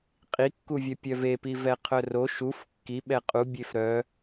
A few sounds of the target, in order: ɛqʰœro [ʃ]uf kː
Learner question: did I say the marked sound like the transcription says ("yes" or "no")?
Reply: yes